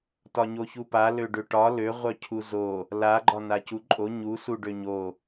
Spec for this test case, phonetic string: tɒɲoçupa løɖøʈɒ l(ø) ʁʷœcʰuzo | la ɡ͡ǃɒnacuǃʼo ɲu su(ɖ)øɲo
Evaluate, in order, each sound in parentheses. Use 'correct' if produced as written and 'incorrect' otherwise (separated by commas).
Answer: correct, correct